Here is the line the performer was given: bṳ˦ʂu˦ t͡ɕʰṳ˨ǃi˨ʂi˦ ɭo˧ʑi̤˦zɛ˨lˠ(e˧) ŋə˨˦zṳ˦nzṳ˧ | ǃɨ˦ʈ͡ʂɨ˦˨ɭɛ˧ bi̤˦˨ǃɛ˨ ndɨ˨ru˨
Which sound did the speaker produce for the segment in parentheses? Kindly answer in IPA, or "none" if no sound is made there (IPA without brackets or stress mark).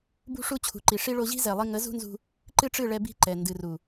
i˧